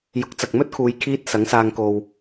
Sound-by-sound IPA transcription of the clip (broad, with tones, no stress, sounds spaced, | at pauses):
j ʊ˨˥ k̚ t͡s ɐ˨ k̚ m ɵ˥ t̚ kʰ uː˨˧ j kʰ iː˥ t̚ s ɐ˨˥ ŋ s aː˧ ŋ k o˧ w